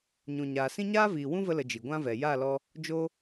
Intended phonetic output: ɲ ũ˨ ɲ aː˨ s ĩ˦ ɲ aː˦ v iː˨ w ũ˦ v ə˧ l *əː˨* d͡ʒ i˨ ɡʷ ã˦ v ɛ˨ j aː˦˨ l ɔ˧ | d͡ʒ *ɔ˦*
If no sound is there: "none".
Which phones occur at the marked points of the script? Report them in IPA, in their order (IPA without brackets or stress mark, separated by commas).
ə˨, o˦